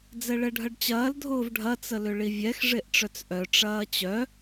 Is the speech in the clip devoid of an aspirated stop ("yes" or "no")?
yes